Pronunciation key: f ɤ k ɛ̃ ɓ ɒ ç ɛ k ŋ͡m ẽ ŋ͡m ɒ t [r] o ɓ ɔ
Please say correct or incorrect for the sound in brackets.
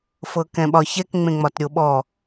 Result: incorrect